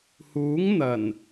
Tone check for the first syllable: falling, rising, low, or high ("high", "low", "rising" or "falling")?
rising